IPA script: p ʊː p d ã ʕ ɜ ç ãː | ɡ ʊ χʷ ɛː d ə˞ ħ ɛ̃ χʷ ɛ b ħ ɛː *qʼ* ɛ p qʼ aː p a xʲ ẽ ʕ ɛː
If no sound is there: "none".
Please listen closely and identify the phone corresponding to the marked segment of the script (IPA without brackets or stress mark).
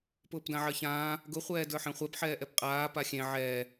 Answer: ʔ